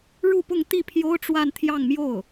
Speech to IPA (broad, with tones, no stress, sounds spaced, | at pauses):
ɻ u˥˧ p ʊ˥˧ ŋ t̪ i˥˩ pʰ j o˥ ʊ̯ ʈ͡ʂ w a˥˧ n t̪ʰ j ɑ˥˧ ŋ m j o˥˩ ʊ̯